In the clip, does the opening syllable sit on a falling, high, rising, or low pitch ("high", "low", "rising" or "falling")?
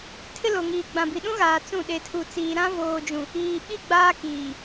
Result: high